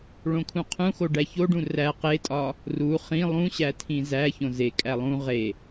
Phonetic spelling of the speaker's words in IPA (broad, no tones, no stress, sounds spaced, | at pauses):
ɭ õ kʰ ũ qʰ ũ x o ɖ æ ç o ɖ ũ r æ q e tʼ ɒ | r u χ ĩ lˠ ũ ɕ æ tʰ ĩ z æ ç õ z e kʼ æ lˠ ũ ʁ e